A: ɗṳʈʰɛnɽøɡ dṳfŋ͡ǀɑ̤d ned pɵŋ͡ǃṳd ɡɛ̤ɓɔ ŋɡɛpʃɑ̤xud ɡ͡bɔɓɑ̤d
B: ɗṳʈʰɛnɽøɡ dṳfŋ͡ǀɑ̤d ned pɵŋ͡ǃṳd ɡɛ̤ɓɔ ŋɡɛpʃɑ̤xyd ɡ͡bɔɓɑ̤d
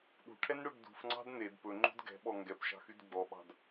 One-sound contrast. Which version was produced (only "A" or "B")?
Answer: B